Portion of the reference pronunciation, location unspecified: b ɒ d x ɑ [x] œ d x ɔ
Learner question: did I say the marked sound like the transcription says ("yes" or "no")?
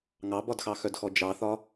yes